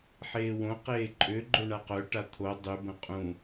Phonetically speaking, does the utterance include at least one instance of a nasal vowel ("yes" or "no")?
yes